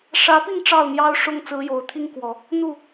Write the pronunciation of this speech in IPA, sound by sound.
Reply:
ʂ ä˧˥ p i˥˧ ŋ ʈ͡ʂ ɑ˥˩ ʊ̯ n̪ j ɑ˥ ʊ̯ ʂ ʊ˥ ŋ t͡s ɹ̩˧˥ j o˨˩ ʊ̯ t̪ʰ i˥ ŋ k w ɔ˨˩˦ | n̪ u˥˩

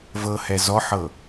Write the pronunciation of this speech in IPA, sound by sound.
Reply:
v ɤ h ɛ z ɔ ħ ɤ

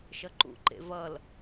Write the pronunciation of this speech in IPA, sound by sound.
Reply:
ʃ ʌ ǃ ṵ ǃ ḛ v ʌ l

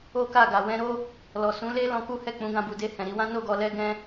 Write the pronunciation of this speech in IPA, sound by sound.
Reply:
o˦ k a˦˨ ɡ a˨ w ɛ̃˧ ɾ o˦ | l ɔ˨ s ũ˨˦ l e˦ l ɔ̃˧ k u˦ h ɛ˦˨ k͡p ũ˨˦ ɡ ã˧ b u˨ d e˧ h ɛ̃˨ ɾ i˧ w ã˦ n o˦˨ ɡ ɔ˨ l ɛ˧ ɡ ɛ̃˦

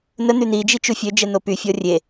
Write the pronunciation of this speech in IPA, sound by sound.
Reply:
n ə n̪ y n̪ i d͡ʒ i t͡ʃ u fʲ ø d͡ʒ ɛ n̪ o p y fʲ ɔ rʲ e

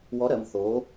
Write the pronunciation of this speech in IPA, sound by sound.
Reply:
w ɔ˧˥ ɾ ɜ˩˧˩ m θ o˧˥

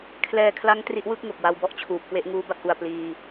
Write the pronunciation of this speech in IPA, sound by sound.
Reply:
kʰ l ɛː˧ kʰ l a˦˥ ŋ t r i˦˥ ʔ w ɯ˥˩ k̚ ŋ o˨˩ k̚ w a˧ w b ɔ˥˩ ʔ t͡ɕʰ uː˨˩ p̚ k w e˦˥ ʔ ŋ uː˦˥ b a˥˩ k̚ ʔ u˨˩ a̯ p l iː˧

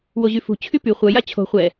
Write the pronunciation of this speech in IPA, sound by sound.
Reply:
w o ʑ y f ṳ t͡ɕʰ y p y χʷ œ j a t͡ɕʰ o̤ χʷ ɛ

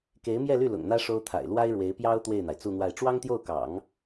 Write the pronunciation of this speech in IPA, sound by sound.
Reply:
k e˧˥ ɪ̯ m j ɛ˥˧ l y˥˩ l ʊ̰˨˩ ŋ n̪ ä˥ ʂ o˥ ʊ̯ t̪ʰ a̰˨˩ ɪ̯ l w a˥ ɪ̯ ɻ w e˧˥ ɪ̯ p j ɑ˥ ʊ̯ t̪ w e˥˩ ɪ̯ n̪ a˩ ɪ̯ t͡s u˥˧ n̪ w a˥˩ ɪ̯ ʈ͡ʂ w ɑ˥ ŋ t̪ j o˥˩ ʊ̯ k ɑ̰˨˩˦ ŋ

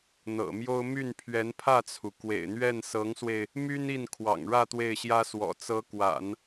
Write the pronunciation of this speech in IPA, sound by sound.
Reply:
n̪ ɤ̰˨˩ m j o˥ ʊ̯ m y˥˩ n pʰ ɥ ɛ˧˥ n pʰ ä˥˩ t͡sʰ u˩ k w ḛ˨˩ ɪ̯ n̪ ɥ ɛ˥˩ n s ɤ˧˥ ŋ s w e˧ ɪ̯ | m y˥ n i˥˩ n kʰ w ɑ̰˨˩ ŋ ɻ ä˥˧ t̪ w e˥˩ ɪ̯ ɕ j ä˥ s w ɔ̰˨˩ t͡s ɤ˧˥ k w a̰˨˩˦ n

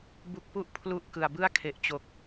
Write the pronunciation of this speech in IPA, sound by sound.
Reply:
b u˦˥ k̚ p u˥˩ ʔ pʰ l u˥˩ ʔ k ɯ˨˩ a̯ b ɯ˥˩ a̯ kʰ e˨˩ ʔ t͡ɕ o˨˩ k̚

